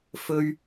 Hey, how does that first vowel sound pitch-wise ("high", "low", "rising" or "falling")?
high